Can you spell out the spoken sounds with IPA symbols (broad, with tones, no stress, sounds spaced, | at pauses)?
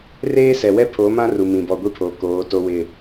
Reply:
r eː˦ s ɛ˨ w ɛ˦ pʰ o˨˦ m ã˦ r u˨ m ĩ˨ b ɔ˨ ɡʷ i˦ pʰ oː˨ k oː˨˦ t o˦ w ɪ˦˨